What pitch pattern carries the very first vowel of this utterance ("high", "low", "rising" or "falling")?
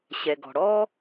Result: low